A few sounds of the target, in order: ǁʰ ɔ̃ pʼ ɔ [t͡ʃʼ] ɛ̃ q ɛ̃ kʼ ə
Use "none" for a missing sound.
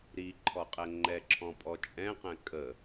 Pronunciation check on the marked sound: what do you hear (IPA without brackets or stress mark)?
t͡ʃʼ